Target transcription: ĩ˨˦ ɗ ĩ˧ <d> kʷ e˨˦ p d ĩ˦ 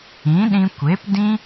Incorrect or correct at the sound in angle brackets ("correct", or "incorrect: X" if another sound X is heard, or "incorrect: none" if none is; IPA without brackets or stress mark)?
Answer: incorrect: none